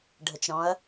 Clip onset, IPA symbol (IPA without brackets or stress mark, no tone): ɖʱ